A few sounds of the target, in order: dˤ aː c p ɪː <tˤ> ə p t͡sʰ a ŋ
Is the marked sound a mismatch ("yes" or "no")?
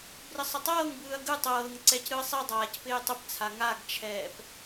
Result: no